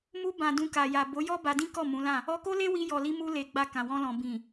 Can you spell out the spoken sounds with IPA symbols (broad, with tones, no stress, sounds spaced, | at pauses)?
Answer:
m u˧ b ã˨ d ũ˧ k a˨ j a˨ b o˨˦ j ɔ˦ b a˧ d ĩ˦ k ɔ˦˨ m ũ˨˦ l ã˦˨ | ɔ˧ k o˦ l e˦ w i˧ j ɔ˨ l i˧ m u˧ l e˨ ɡ͡b a˧ k ã˨ w ɔ̃˧ l ɔ̃˨ b ĩ˨